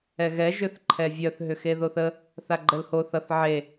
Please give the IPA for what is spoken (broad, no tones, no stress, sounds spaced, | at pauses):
ɛ ɣ ɛ ʒ ʏ θ ǃʰ ɛ vʲ œ θ ɦ ʏ x e ð o θ ə | θ a ɡ͡ǃ ə l h o θ ʌ θ ʕ e